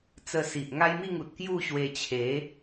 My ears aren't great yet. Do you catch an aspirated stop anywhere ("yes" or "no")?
yes